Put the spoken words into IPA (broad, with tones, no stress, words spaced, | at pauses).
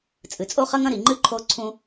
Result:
t͡sʼɨ˩t͡sʼo˥χɐ˥ŋɐ̃˥ ɾi˩ŋ͡ǃɨ˥ǃʰo˦ ǀʰũ˦